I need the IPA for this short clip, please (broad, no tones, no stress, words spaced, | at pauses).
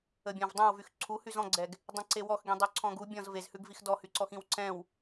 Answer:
əbʲɔ̃vdˤɛ̃wvyx ǀʰu hyzɔ̃ɡ͡ǀɛɡ | dˤĩǀewɔxɡĩ dˤyǀʰɔ̃ɡu bʲɔ̃z vezhʉɡvix dɔhyǀɔx ĩwǀɛ̃w